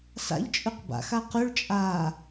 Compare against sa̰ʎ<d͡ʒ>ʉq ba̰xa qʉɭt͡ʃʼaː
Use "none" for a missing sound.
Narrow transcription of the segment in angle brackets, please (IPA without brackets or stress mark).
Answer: t͡ʃʼ